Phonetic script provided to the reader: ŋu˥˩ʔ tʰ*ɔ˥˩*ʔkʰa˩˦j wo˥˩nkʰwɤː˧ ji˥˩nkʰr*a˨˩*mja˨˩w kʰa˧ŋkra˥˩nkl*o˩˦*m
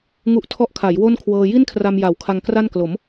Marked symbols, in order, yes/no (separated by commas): no, no, yes